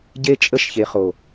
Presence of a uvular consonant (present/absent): present